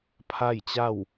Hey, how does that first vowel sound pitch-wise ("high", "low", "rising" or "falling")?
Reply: falling